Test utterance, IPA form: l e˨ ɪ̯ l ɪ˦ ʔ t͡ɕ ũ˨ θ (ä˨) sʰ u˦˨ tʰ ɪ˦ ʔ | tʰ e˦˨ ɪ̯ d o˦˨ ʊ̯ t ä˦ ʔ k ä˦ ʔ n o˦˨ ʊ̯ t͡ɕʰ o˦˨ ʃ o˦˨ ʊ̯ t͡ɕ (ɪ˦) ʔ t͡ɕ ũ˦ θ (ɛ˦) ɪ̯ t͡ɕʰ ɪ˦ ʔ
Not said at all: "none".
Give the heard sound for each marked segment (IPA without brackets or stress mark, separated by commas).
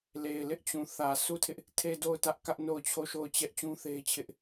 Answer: ä˨, ɛ˦, e˦